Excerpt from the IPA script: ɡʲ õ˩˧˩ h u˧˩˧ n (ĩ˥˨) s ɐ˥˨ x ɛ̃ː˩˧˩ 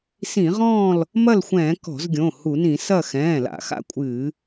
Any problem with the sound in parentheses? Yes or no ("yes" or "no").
yes